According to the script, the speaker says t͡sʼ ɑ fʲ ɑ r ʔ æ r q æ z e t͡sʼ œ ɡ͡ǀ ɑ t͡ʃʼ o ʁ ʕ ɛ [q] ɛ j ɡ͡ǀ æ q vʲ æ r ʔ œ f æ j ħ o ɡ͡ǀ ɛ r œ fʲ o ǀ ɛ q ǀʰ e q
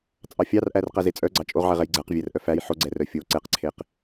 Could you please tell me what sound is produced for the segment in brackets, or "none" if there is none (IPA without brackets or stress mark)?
ʁ